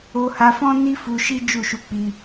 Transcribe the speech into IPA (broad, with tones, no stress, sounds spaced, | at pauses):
o˧ h a˧ f ɔ̃˦ n i˦ f u˧ ʃ i˦ d͡ʒ u˦˨ ʃ u˧ k͡p i˧